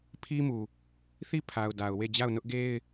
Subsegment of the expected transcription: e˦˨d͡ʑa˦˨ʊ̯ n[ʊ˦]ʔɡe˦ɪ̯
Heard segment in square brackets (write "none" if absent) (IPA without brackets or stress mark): ʊ˦